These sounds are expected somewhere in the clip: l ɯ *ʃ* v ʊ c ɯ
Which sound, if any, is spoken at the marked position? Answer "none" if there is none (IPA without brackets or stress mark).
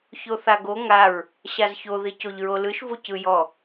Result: ʃ